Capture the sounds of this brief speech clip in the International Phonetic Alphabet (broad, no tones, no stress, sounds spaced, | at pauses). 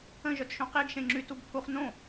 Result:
ə̃ ʒ œ t ʃ õ q i ɡ ʃ ẽ ŋ͡ǁ y t u ɡ pʰ u χ n õ